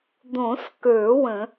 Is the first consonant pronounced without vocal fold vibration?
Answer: no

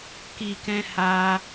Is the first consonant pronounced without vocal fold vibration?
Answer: yes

